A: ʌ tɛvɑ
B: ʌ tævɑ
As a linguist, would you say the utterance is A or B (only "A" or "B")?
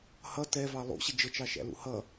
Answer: A